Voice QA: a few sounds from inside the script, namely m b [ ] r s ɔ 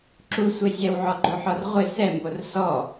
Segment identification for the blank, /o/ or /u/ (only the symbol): o